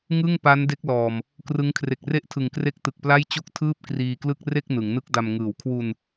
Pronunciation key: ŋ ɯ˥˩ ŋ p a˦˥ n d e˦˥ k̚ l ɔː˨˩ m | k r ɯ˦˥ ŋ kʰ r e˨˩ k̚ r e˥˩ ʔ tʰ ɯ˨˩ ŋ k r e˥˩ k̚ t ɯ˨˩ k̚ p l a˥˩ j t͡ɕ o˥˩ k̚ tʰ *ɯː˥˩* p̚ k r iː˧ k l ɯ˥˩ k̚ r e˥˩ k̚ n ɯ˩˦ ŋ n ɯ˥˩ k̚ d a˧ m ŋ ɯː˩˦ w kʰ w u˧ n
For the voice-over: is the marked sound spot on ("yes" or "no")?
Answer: yes